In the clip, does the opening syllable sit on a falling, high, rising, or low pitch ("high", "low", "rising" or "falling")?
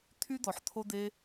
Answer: high